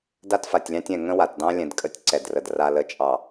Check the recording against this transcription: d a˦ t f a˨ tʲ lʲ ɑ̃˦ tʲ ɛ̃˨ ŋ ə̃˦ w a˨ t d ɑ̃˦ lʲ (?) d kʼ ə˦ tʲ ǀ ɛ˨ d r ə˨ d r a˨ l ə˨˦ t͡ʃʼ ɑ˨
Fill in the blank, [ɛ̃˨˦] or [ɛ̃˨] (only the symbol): ɛ̃˨